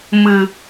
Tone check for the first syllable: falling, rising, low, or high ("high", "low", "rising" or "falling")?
low